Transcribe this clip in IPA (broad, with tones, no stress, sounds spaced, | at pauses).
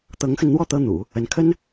t̪ ɤ˧˥ ŋ x ə˧ n n̪ w ɔ˥˩ t̪ ɤ˥ n̪ ṵ˨˩˦ | ə˧˥ n kʰ ə˥ n